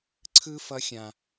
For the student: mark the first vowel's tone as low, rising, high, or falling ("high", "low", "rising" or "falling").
high